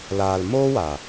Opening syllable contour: low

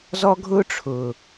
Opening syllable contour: high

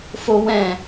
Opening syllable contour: high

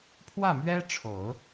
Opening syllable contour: falling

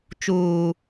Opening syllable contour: low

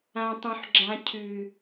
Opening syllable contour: high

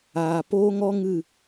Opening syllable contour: low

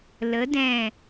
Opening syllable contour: rising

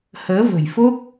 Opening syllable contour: rising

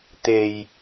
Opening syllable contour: low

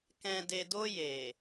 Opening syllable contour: low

